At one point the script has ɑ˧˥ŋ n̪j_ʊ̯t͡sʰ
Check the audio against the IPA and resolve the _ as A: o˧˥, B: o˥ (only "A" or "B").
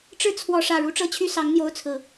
B